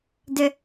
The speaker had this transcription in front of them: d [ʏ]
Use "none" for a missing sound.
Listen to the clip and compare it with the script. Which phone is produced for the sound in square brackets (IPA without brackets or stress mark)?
ʏ